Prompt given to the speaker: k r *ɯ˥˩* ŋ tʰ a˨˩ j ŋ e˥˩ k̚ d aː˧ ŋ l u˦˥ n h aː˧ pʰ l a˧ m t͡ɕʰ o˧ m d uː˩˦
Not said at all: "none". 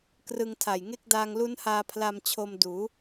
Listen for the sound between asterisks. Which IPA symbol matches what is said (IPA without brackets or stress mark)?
ɯ˧